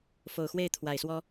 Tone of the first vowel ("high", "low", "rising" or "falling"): low